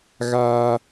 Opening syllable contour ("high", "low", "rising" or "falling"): high